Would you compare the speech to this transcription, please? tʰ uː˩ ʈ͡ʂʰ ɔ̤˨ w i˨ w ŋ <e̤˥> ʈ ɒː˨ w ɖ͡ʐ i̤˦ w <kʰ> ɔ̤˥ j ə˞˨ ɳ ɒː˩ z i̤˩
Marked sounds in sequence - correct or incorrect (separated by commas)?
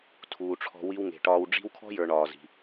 incorrect, correct